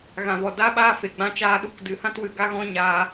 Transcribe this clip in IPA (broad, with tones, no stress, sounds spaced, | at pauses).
ɣ ã˨ v ɔ˨ d aː˦ ɓ aː˦ f e˨ ɡ͡b ã˦ t͡ʃ aː˦ ɗ u˧ k d ɨ˨ h ã˦ t w ɨ˨ ɡ a˦ ɣ ɔ̃˦ ɲ aː˧